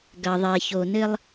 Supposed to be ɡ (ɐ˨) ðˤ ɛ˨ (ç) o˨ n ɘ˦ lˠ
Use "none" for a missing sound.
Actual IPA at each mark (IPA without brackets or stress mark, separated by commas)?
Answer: ɐ˨, ç